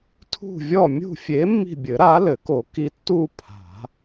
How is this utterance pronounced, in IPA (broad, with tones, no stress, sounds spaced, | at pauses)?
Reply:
tʰ ṳ˦˨ vʲ ɔ˦˨ mʲ ṳ˦˨ fʲ e˨˥ mː i̤˦˨ bʲ ɘ˨˩˦ ɾ a˨˥ l ɘ˨˩˦ k o˨˩˦ k i˨˥ tː u˦˨ pʰ a̤˨˩˦